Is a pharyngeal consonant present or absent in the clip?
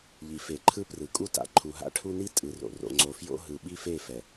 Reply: absent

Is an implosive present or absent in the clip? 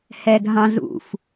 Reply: absent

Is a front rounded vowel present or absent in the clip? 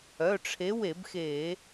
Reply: present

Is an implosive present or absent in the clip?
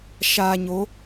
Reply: absent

